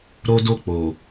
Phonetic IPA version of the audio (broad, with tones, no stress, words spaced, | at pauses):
ɾo˦do˦˨ k͡po˨